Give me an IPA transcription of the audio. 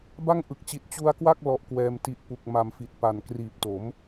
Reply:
b a˥˩ ŋ ʔ ɯ˨˩ k̚ t͡ɕ i˨˩ t̚ t͡ɕ u˧ a̯ k w a˥˩ k̚ l ɔ˦˥ ʔ k w ɛː˧ m t i˦˥ ʔ p u˨˩ k̚ m a˨˩ m f i˨˩ t̚ p a˨˩ n k r iː˨˩ p̚ t o˩˦ m

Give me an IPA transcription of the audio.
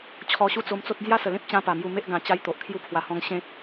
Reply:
t͡ɕʰ ɔ˧ ɕ u˦ t͡s o˧ m t͡s o˦ t̚ d͡z j a˦ s ə˨˩ l ẽ˦ p̚ t͡ɕ ã˦ p a˨˩ m j u˧ m e˦ ʔ ɡ ã˧ t͡ɕ a˦ j t̪ o˨ ʔ kʰ j u˦ pʰ w a˧ h ɔ̃˧ ŋ ɕ ẽ˦ t̚

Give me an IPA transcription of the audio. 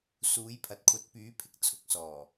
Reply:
s uː˨˥ j pʰ ɐ˨ t̚ kʷʰ ɐ˨˥ t̚ p yː˨˥ pʰ ɪ˨˥ k̚ t͡sʰ ʊ˨˥ k̚ s ɔː˨˩

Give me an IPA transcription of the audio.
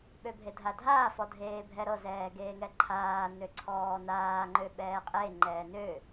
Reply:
ɓ ø bʱ e dʱ a dʱ aː f ɔ dʱ eː bʱ ɛ ɾ ɤ z ɛː ɡ eː ŋ ɛ ǃʰ aː n ø ǀʰ ɔː n aː ŋ͡ǃ ø ɓ ɛː qʼ e ŋ͡ǃ ɛː n ø

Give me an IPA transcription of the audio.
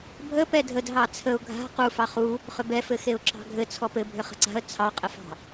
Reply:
bʱ ə p ɛ dʱ ə d ɦ ɑ t͡sʰ ə ʊ̯ ɡʱ a̤ q u f ɑ χ u | χ ʏ b ɛ f ɘ x e ʊ̯ ǁ ɑ̤ ɡʱ ɘ t͡sʰ ɔ p ɘ bʱ ʏ χ ə̤ ǀ a̤ ə̯ t͡sʰ ɑ qʼ ɘ f ɑ̤

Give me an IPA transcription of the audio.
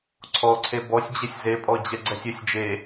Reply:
ǀʰ ɔ ǀʰ e b ɔ sʲ d͡ʑ e sʲ z e pʼ ɔ d͡ʑ ɛ ɡ͡ǀ ɛ sʲ ʏ sʲ d͡ʒ e

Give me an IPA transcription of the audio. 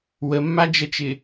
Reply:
w ə mː a d͡ʒ ə t͡ʃ ɪ

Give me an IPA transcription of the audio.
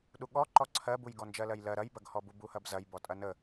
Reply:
ɗ u ɠ ɔ ǃ ɔ ǀʰ ɜ b u j ɡ ɔ n d͡ʒ ɜ l ɜ j l ɜ ɾ ɐ j b ɐ ɡ h ɔ b u b u h ɐ b z ɐ j b ɔ tʼ ɐ n ə

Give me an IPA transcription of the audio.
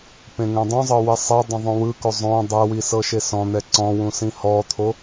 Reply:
p ẽ ŋ ɛ̃ dˤ ũ zˤ ɤ w i sˤ ɛ dˤ ɛ̃ ðˤ õ w ɯ k o zˤ õ dˤ ɛ w i s ɤ ʃ e s ɔ̃ n̪ ɛ ǀ ɔ̃ w ũ s ĩ h ɔ t̪ʰ o

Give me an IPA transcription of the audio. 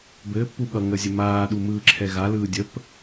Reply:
b ɘː pː u ɠ ʌ ŋ ə zʲ ɘ m aː ɗ u m ɯː ǁʰ ɛ ɣ a l ɯː dʲ ə p

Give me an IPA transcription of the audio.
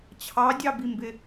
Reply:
t͡ɕʰ ɑ dʲ ɑ b i m b ɪ

